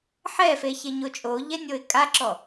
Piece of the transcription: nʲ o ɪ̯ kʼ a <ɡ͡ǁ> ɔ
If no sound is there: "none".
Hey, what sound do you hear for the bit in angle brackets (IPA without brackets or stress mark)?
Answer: ǁ